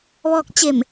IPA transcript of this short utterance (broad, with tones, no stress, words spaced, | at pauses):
ʋɔː˧k̚ t͡ɕe˧˩m